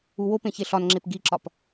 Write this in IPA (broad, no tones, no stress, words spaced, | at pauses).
uwopẽ çeɬɒnŋ͡ǁep ɡiǁɒp